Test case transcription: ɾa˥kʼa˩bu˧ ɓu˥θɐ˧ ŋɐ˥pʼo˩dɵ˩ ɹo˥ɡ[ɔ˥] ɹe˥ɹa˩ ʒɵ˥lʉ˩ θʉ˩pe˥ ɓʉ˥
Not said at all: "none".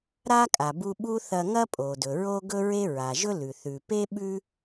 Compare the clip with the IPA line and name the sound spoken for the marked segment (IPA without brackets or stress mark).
ɵ˥